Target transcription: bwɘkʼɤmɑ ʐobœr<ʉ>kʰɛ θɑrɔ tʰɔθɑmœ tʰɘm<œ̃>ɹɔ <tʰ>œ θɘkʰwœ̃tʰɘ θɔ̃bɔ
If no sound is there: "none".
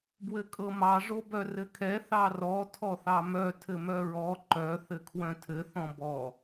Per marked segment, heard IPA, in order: ɘ, œ, ǃ

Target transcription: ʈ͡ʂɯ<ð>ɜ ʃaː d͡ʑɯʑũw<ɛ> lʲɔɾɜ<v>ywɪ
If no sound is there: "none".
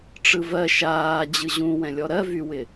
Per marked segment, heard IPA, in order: v, ɛ̃, v

